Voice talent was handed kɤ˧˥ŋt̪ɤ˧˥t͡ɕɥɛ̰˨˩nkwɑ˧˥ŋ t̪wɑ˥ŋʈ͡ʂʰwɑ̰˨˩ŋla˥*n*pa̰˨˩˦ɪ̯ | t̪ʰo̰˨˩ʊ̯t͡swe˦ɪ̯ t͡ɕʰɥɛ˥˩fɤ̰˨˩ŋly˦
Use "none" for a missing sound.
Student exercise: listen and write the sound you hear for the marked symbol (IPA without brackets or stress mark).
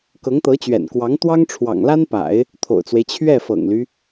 n